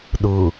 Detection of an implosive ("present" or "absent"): present